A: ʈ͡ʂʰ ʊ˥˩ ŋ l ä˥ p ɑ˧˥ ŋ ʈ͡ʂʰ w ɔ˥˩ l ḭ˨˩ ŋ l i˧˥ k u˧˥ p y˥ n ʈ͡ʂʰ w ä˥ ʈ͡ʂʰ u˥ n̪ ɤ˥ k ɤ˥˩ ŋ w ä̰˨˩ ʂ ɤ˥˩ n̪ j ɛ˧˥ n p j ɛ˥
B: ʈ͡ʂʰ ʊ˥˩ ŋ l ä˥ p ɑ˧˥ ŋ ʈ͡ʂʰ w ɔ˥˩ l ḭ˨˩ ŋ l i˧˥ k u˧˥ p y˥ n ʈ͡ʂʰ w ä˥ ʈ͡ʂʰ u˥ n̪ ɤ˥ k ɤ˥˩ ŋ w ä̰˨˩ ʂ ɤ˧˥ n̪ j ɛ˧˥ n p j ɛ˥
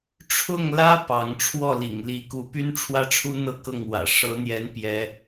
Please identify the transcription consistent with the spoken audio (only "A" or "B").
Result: B